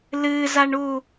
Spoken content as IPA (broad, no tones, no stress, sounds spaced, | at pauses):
l ɨ z a ɳ u